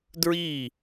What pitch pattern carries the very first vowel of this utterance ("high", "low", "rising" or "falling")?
falling